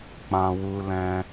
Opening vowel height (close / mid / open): open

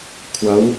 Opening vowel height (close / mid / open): open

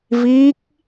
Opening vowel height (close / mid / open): close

